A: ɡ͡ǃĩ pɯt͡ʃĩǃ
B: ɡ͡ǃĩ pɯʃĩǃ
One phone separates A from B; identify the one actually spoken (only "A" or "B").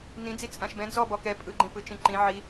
A